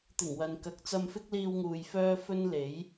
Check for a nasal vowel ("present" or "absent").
absent